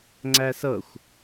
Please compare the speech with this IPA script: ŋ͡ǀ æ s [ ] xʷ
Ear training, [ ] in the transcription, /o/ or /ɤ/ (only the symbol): ɤ